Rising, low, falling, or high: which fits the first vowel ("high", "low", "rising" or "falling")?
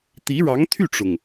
rising